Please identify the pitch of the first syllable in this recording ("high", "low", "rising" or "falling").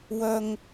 low